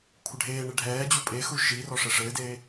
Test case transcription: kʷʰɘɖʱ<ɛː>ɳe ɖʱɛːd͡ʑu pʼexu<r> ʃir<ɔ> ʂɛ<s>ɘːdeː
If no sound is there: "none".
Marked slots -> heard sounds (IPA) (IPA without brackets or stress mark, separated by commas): eː, none, ɔ, ʂ